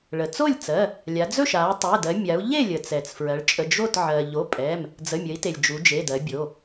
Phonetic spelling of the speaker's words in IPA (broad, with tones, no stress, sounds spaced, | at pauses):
ɭ ə˩ t͡s o˥˨ lʲ t͡s ɜ˩˧˩ | lʲ a˩˧ d͡z ɵ˥˨ ʃ a˩˧ tˤ ɛ˩˧˩ d ɜ˩˧ mʲ a˩˧ u̯ ʎ e˥˨ lʲ ə˩ t͡s ɛ˩ t͡s f ɹ ɜ˩˧ ɭ t͡ʃʼ ə˩˧˩ d͡ʒ o˥˨ t ʕ ɜ˩ ʎ o˩˧˩ pʼ ɛ˩˧˩ m | d͡z ə˩˧˩ mʲ ə˩˧ i̯ t e˩ lʲ d͡ʒ u˩˧ d͡ʒ e˩˧˩ d ɜ˩˧ bʲ o˩˧˩